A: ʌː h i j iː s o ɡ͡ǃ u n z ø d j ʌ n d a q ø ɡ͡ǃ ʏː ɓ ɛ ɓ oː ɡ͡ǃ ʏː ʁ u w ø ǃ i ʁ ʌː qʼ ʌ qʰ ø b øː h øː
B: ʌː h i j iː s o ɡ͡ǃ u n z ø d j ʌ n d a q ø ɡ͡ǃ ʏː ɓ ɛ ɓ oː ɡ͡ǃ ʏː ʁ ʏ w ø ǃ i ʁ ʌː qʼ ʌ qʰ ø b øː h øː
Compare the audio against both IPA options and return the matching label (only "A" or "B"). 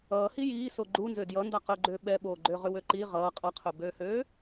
B